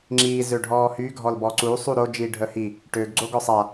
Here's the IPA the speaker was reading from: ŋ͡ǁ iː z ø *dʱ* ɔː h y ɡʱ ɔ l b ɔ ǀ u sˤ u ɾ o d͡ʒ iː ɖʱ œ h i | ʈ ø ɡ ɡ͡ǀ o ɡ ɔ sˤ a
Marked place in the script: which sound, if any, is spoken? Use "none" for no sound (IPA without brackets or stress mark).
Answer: ɖʱ